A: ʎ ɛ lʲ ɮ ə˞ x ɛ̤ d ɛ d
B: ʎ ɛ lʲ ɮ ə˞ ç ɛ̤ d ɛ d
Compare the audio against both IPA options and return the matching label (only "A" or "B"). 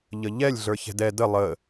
B